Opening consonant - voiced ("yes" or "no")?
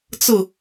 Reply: no